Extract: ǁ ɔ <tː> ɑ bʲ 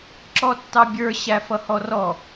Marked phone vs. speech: correct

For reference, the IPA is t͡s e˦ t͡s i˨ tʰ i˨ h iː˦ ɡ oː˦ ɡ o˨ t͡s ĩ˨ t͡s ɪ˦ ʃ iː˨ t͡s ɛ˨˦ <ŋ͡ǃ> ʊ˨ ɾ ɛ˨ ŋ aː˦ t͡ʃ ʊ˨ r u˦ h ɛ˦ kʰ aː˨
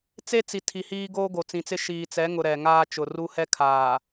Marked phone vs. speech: incorrect: ŋ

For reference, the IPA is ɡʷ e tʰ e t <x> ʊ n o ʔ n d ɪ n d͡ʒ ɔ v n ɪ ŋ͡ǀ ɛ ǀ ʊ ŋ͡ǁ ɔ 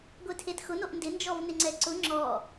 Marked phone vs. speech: correct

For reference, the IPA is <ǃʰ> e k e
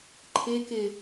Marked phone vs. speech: correct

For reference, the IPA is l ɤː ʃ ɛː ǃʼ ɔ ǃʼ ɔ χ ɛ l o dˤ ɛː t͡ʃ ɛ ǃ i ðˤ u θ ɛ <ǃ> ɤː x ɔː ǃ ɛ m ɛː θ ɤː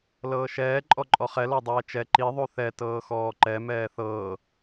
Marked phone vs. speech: incorrect: t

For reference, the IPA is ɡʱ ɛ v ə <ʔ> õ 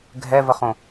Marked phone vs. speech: incorrect: χ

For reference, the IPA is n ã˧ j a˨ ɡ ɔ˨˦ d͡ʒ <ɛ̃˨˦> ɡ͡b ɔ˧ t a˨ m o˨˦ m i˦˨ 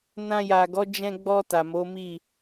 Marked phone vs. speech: incorrect: ɛ̃˧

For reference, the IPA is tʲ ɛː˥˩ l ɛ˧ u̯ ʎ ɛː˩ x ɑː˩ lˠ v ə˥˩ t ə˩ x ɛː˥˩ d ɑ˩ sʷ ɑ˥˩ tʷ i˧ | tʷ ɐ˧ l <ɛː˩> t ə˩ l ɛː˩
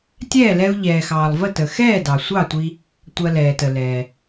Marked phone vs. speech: correct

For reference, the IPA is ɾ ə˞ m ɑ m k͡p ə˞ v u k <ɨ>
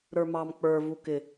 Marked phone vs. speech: incorrect: ɪ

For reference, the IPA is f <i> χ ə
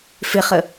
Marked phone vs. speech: incorrect: ɪ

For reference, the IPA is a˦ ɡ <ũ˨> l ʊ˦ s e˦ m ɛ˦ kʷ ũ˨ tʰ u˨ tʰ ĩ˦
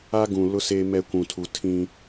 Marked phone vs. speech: correct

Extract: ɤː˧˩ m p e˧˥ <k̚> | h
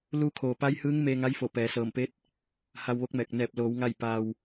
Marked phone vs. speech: incorrect: t̚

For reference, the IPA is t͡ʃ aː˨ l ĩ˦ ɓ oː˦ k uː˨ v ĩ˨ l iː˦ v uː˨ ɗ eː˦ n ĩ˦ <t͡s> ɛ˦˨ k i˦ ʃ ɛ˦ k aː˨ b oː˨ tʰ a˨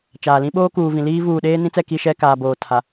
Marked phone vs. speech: correct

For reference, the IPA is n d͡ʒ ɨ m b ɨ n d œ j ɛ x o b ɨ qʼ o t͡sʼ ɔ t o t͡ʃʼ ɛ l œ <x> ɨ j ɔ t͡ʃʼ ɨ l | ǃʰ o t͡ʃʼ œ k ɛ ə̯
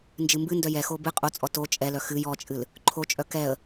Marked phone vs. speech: correct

